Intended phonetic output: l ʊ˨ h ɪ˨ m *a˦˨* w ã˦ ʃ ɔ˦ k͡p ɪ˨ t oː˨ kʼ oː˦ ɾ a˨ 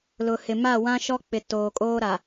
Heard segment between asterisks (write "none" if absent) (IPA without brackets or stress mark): a˦˨